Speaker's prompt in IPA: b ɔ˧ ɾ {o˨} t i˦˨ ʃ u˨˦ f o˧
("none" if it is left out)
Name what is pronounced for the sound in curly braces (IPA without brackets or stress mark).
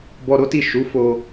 o˦